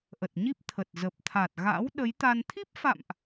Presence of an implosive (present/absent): present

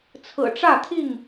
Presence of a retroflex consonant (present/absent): present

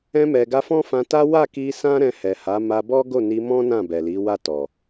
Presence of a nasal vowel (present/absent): present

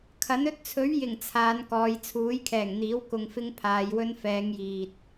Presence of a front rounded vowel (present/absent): absent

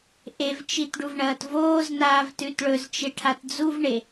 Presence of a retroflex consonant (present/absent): present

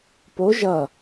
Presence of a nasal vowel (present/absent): absent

